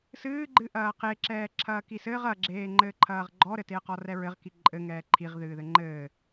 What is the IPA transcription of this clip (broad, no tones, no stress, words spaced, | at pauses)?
sɨːɡ͡ǃɨʔɐː qeǁɛː ǁʰɐːkisɘːʁ ɐɡ͡ǁeː ŋ͡ǃɘːǃʰɐːʁɡ͡ǃɔɾɘ teə̯qɔrɛɹɘʁ kiǃʼɘ ŋɛːǃʰiʁ ðɨːðɘŋ͡ǃɘː